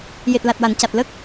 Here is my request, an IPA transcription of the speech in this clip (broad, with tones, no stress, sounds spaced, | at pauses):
j e˨˩ t̚ l a˨˩ t̚ w a˨˩˨ n c a˨˩ t̚ l ə˦˥ k̚